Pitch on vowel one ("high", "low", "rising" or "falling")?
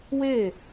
falling